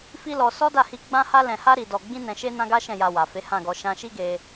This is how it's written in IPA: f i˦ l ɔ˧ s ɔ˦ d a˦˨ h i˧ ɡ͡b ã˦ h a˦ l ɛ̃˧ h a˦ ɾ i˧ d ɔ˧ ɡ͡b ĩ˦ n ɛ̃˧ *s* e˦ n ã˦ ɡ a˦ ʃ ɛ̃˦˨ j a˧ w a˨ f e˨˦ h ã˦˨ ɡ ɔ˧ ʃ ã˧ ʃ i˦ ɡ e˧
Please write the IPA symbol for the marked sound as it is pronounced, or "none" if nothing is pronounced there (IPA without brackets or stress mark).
ʃ